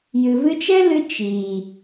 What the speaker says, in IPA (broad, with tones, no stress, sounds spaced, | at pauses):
j ɨ˨ v ɨ˧ t͡ʃ ɛ˦ l ɨ˧ t͡ʃ i˨